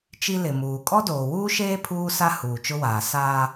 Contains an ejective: yes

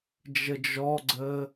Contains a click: yes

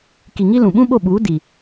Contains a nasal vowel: yes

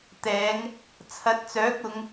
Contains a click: no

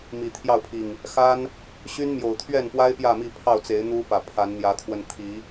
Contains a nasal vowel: no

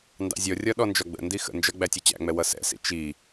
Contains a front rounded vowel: no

